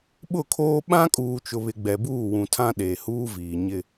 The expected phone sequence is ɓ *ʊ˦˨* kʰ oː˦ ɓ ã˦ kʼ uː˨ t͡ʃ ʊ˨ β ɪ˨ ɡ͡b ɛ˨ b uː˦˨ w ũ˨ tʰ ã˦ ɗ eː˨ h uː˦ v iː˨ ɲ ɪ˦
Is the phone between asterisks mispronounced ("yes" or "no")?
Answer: no